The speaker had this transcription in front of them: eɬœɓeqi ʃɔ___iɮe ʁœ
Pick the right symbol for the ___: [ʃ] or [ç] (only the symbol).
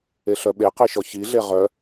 ç